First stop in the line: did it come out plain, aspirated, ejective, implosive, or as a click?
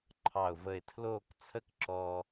click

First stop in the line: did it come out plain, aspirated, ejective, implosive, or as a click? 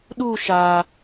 implosive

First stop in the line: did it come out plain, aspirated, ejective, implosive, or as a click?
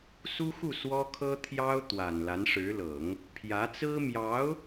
aspirated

